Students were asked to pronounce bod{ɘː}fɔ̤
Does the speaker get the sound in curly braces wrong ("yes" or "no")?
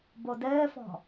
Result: no